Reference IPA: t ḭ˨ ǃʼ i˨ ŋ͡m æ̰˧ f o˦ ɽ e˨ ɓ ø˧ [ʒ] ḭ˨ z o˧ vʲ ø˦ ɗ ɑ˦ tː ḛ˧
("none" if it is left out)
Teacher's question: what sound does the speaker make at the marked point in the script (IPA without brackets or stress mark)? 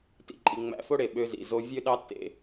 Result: z